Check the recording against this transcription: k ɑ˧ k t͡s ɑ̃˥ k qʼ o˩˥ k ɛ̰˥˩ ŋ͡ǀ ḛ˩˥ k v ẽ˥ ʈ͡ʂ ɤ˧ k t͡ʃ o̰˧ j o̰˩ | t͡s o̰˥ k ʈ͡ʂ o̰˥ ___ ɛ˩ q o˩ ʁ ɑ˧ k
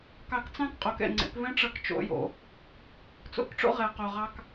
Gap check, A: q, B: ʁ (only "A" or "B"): B